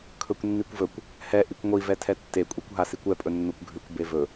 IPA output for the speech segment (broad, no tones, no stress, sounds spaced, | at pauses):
kʰ ɵ kʷ nː i kʷ v ɵ kʷ | h ɛ ʔ i kʷ ŋʷ i v ɛ tʰ ɛ tː e kʷʼ e kʷ ɦ a s i kʷ ɛ pʼ ɵ nː o kʷ ɡʱ ʉ kʷ b e v ɵ